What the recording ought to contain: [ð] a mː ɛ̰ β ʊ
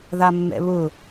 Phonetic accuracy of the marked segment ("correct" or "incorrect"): correct